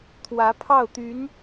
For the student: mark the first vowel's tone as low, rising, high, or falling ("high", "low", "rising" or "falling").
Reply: rising